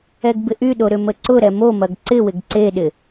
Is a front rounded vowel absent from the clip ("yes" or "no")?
no